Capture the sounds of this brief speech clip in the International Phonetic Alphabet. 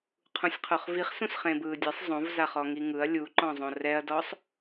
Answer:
qʰ ũ sʲ qʰ o χ v i χ s ũ s χ ẽː b ɯː dʲ e sˤ zˤ õ v z a χ ɔ ŋ i ŋ ɯ ɐ̯ lʲ u ǃ ɔ̃ zˤ õ r ɛ ɐ̯ d ɔ sˤ

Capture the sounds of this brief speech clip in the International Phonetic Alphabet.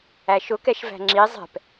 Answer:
æ ʃ ʊ k ɛ ʃ v æ̤ ŋ͡ǁ i zˤ ɛ̤ p

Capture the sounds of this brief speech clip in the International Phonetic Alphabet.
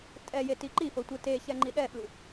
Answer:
tʼ ɛ j e t i ǃ i f ɤ tʷ ɯ t e ç ɛ ŋ͡ǃ i ɗ ɛ ɓ ɯ

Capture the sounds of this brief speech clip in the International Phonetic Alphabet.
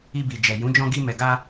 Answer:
i˧ b i˨ d͡ʒ ɛ˨ j ũ˨˦ d͡ʒ ɔ̃˧ ɡ i˧ m ɛ˨ ɡ a˧

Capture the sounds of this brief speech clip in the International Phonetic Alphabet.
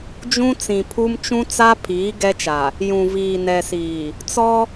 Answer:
d͡ʒ ũ˦ t͡s ĩ˨ pʰ u˦ m t͡ʃ ũ˦ t͡s a˦ pʰ iː˨˦ ɡ ɛ˦ t͡ʃ a˨ | j ũ˨ v iː˨ n ɛ˨ s iː˨ | t͡s ɔ˦

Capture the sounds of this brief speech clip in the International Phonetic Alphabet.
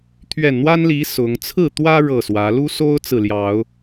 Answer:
t̪ʰ ɥ ɛ˨˩ n n̪ w a˦ n l i˨˦ s ʊ˨˦ ŋ t͡sʰ ɹ̩˥˨ t̪ w ä˦ ɻ ɤ˥˨ s w ä˨˦ l u˦ s o˦ ʊ̯ t͡s ɹ̩˨ l j ɑ˨˦ ʊ̯

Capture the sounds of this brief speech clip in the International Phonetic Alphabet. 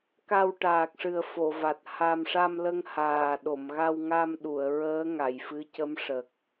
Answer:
k a˧ w ʈ aː˨˩ k̚ ʂ ɨ˨˩ ə̯ f o˨˩˨ v a˨˩ t̚ h a˧ m ʂ a˧ m l ə˧ ŋ h aː˨˩ ɗ o˨˩˨ m ɣ a˧ w ŋ a˧ m ɗ u˨˩˨ ə̯ ɹ əː˧˥ ŋ a˨˩˨ j f ɨ˧˥ c ə˧˥ m ʂ ə˨˩ k̚

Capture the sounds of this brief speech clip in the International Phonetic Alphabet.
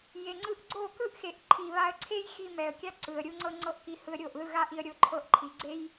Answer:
j e˨ ŋ͡ǀ ɯ˧ ʔ ɡ͡ǀ o˦˨ k ɯ˦ ʔ x e˨ ʔ ǃʰ i˨ β a˧ ə̯ ǀʰ e˦ j x i˧ m ɛ˨ ə̯ kʲ a˦ ǀ ɯ˨ ə̯ ɾʲ u˧ ŋ͡ǀ ɤ˧ ŋ͡ǀ ɤ˦ ʔ k i˧ h ɯ˧ ə̯ ɾʲ o˦˨ ʔ ð ɯ˦˨ ɣ a˦ ʔ i˧ ə̯ ɾʲ o˧ ǃʰ ɤ˧ ʔ ǃʰ i˨ ɡ͡ǀ e˦ j

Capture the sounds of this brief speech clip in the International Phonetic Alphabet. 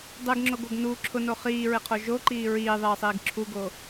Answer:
dˤ e ɡ ŋ͡ǁ o ɡ o ɡ n u ǁʰ ʊ n o χ iː ɹ ɪ qʰ o ʒ o ǃ iː ɹ iː ðˤ iː sˤ iː ɡ ǁʰ u ɡ o

